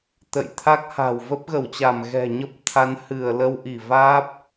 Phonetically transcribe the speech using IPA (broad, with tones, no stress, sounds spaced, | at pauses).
t̪ ə̰˧˨ j t̪ʰ a˦˥ k̚ h a̤˨˩ w v ə˦˥ p̚ ɣ ə˧˩ w t͡ɕ a˧˩ m ɣ ɛ̤˨˩ ɲ ə˦˥ p̚ t̪ʰ a˨˦ n h ɨ˧˩ ə̯ l ə˧ w ʔ i˧˩ v aː˦˥ p̚